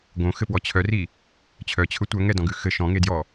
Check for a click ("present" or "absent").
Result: absent